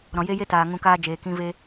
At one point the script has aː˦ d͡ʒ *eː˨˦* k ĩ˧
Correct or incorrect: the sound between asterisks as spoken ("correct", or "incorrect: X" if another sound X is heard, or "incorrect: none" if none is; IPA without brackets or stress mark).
incorrect: eː˨